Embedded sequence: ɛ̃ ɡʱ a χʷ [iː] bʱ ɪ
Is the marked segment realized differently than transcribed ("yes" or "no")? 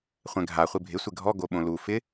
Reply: yes